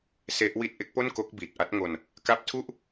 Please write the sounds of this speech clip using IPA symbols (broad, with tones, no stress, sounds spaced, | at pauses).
s e˦˥ ʔ w i˥˩ t̚ ʔ e˦˥ k̚ p o˥˩ n k o˦˥ k̚ b iː˨˩ t̚ ʔ a˦˥ t̚ ŋ o˧ n | k a˦˥ p̚ tʰ u˥˩ ʔ